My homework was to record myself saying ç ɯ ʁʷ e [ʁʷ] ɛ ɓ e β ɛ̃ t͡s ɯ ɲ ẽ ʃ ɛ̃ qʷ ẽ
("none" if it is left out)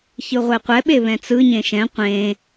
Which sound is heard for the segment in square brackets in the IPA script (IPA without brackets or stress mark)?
qʷ